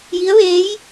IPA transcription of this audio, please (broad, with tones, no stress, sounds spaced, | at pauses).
j i˧˥ ə̯ ʋ eː˧˥ j